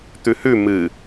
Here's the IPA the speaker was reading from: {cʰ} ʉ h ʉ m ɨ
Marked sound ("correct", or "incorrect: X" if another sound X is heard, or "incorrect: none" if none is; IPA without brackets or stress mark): incorrect: t̪